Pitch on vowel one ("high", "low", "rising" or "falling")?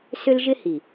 high